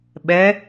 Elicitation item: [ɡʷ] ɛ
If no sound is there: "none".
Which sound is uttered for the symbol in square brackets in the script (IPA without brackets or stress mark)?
ɓ